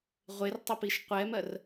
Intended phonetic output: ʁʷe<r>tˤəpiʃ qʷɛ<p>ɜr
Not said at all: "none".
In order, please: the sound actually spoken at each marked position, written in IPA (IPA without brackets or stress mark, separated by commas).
r, m